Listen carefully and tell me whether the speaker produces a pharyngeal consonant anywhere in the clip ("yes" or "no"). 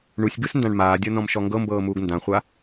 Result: no